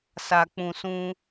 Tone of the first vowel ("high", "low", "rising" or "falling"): low